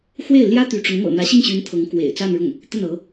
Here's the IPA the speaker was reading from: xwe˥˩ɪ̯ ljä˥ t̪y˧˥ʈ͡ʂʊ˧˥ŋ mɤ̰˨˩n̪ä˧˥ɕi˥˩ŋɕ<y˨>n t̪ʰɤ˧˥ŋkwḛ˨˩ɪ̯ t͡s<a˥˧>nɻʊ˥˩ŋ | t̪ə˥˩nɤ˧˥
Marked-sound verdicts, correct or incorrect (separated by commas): incorrect, correct